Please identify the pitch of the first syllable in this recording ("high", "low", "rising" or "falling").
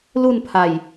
falling